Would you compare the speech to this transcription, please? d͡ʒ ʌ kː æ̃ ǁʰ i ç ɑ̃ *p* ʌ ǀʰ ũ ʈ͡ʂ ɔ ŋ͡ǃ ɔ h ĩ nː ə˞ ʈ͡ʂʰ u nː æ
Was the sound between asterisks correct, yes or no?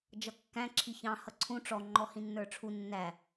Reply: no